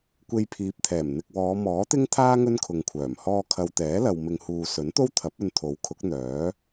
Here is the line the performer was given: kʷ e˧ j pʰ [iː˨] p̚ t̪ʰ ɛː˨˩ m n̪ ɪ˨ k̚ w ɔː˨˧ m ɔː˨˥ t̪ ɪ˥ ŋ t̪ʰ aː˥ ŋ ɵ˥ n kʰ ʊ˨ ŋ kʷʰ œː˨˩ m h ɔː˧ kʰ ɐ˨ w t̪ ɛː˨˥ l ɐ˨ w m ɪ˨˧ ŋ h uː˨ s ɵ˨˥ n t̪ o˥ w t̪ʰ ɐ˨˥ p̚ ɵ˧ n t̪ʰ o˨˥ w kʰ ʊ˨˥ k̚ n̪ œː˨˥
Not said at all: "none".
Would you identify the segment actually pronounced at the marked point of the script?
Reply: iː˨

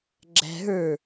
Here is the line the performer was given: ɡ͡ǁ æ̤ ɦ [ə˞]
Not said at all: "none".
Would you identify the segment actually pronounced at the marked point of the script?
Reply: ə˞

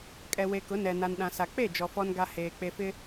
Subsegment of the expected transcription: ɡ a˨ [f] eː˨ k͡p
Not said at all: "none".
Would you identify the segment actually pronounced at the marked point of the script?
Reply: h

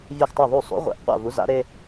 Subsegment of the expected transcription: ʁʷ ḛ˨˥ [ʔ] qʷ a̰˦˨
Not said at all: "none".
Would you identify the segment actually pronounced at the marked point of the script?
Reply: ʔ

